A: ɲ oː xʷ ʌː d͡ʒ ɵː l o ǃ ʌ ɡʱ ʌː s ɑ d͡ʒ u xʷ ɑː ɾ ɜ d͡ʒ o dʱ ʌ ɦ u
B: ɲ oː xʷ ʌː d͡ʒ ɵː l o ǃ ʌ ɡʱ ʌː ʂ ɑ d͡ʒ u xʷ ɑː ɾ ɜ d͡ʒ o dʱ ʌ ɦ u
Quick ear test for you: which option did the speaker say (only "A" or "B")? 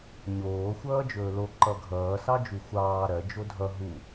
A